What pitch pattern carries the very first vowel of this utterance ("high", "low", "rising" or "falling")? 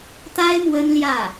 high